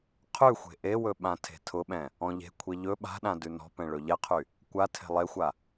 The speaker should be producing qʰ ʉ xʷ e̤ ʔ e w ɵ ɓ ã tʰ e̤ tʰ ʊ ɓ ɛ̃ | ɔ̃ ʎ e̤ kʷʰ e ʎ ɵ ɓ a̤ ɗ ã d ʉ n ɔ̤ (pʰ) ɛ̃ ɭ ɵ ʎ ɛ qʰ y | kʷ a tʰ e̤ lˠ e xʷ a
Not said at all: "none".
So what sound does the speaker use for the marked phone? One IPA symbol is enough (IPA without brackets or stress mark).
p